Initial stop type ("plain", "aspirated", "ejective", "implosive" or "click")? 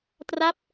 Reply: plain